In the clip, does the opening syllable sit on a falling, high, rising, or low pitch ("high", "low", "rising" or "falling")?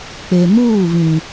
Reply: low